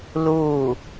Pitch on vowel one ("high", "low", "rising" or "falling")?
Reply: falling